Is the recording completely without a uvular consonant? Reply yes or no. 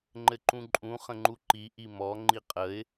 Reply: no